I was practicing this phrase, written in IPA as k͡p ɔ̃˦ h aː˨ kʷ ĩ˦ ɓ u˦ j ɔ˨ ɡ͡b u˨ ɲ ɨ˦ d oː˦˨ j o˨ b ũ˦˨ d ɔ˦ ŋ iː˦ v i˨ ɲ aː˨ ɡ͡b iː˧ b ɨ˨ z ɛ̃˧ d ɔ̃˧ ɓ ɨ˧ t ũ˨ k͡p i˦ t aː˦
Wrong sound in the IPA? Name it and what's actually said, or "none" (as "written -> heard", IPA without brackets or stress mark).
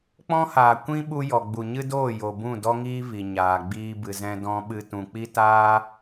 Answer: none